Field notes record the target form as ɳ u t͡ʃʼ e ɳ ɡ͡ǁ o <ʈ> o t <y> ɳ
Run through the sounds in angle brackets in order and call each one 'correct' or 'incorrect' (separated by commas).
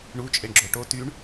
correct, correct